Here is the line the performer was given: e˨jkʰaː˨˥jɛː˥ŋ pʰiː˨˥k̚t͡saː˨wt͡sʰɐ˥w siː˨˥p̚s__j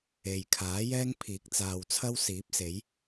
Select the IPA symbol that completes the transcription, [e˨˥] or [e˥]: e˨˥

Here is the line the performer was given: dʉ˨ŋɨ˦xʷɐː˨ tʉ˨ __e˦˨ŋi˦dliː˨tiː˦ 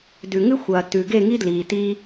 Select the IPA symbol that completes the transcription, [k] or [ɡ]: ɡ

